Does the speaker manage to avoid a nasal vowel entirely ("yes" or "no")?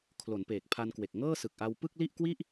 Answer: yes